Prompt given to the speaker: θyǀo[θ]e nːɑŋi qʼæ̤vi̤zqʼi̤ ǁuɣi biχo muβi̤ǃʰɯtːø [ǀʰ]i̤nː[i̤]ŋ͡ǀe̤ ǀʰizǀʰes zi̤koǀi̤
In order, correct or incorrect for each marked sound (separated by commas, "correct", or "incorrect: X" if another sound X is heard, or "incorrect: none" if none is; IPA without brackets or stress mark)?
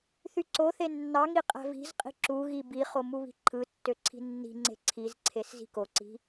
correct, correct, correct